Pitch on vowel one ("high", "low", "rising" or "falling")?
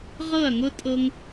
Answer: falling